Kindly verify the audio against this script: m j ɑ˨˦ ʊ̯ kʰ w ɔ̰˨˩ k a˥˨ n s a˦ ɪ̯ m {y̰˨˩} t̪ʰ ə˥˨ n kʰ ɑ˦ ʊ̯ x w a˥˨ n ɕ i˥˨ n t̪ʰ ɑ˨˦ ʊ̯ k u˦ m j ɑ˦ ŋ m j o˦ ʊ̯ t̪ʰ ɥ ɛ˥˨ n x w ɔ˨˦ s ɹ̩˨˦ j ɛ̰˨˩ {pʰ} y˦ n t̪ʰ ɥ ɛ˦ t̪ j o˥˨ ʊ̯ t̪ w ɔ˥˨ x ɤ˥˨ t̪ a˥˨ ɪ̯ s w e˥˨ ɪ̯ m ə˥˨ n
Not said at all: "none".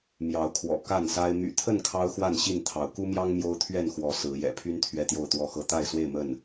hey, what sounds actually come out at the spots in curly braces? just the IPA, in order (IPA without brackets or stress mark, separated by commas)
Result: y̰˨˩, pʰ